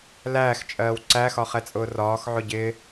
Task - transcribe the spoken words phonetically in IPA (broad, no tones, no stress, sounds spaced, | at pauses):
l æː x t͡ʃʼ ɜː w ǀ æ x ɒ χ ɛ t͡sʼ ʊː r ɒː x ʕ ʊ ɟ ɪ